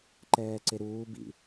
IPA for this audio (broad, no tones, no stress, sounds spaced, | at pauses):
ǃ ɛː ǀ e ɾ uː b ḭ